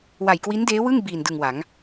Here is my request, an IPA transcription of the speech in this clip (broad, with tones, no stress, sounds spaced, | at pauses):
w a˨˩ j k w i˦˥ n d eː˦˥ w ɯ˥˩ ŋ b iː˨˩ n d ɯ˨˩ ŋ w a˩˦ ŋ